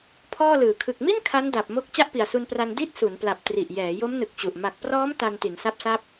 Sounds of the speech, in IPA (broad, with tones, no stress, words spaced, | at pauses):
pʰɔː˥˩lɯː˨˩ kʰɯ˨˩k̚mi˥˩n kʰa˦˥nda˨˩p̚mo˦˥k̚ t͡ɕa˥˩ʔpi˨˩a̯su˧npra˧n di˥˩t̚su˩˦npla˨˩p̚ tri˨˩ʔjɛː˩˦ jo˦˥mnɯ˨˩k̚t͡ɕu˨˩ʔ ma˨˩k̚prɔː˦˥m ta˧nti˩˦nsa˦˥p̚sa˦˥p̚